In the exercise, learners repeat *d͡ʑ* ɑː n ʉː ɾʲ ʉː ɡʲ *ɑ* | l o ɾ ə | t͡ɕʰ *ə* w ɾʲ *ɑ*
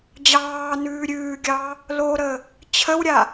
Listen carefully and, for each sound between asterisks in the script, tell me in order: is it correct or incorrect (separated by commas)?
correct, correct, correct, incorrect